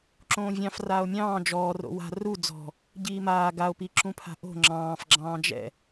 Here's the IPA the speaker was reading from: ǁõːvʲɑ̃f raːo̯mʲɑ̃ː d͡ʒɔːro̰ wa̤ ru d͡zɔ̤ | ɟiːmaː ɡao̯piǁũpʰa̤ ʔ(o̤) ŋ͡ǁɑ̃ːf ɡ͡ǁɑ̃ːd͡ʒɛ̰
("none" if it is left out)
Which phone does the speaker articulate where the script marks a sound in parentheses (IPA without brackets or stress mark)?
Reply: o̤